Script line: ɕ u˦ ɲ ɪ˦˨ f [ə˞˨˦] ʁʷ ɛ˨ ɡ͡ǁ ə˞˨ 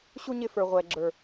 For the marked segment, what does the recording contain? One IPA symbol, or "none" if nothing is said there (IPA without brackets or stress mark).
ə˞˨